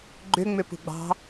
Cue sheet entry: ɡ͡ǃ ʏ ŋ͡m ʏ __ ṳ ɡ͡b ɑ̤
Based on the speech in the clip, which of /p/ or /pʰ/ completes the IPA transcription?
p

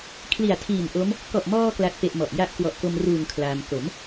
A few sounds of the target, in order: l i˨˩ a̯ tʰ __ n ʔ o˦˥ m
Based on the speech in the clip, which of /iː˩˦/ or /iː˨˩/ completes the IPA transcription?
iː˨˩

